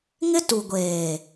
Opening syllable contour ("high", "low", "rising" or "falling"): high